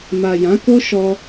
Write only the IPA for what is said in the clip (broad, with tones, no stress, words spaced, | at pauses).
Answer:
ma˨jã˨˦ko˦ʃɔ˧